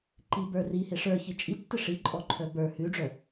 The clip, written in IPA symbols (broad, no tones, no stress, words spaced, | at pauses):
ǃibə˞ rihe ʂə˞çi t͡ʃʼitːɘ ʂiǃʼɔǃʰœ bə˞ hʉɖ͡ʐœ